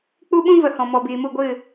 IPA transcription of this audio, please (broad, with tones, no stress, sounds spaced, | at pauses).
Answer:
k͡p u˦ ɓ ũ˦ v ə˨ h ɔ̃˨ m ɔ˨ b iː˨ m u˦˨ ɡʷ ɨ˦˨